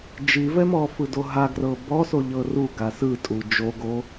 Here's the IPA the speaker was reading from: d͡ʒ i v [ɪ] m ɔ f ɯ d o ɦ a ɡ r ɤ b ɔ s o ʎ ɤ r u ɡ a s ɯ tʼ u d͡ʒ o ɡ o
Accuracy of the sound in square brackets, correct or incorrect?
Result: incorrect